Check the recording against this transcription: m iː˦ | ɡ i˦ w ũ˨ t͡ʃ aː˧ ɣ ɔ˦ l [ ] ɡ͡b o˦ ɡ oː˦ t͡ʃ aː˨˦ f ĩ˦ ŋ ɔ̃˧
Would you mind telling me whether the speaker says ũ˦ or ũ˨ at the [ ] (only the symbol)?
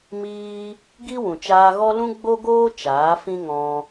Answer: ũ˦